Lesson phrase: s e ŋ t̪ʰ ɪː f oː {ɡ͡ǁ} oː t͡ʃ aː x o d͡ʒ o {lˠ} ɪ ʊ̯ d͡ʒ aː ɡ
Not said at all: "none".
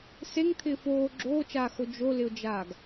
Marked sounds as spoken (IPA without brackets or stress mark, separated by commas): ɡ͡ǁ, l